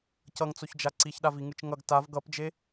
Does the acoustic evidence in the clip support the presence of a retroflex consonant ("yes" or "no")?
no